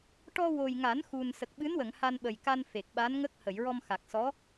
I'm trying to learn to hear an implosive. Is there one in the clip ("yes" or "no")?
yes